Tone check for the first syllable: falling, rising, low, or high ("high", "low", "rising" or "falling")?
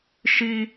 high